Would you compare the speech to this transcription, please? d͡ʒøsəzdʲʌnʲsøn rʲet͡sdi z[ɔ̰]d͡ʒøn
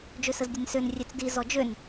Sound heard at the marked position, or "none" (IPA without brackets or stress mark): ɔ